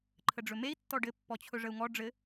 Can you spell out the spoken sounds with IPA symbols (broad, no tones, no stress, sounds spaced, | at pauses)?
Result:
ǃʰ ə ɖ͡ʐ ɵ m e i̯ tː ɔ ɖ ɘ pː ɔ t͡ɕʰ ɵ ʐ ə u̯ ŋ ɔ ɖ͡ʐ ɘ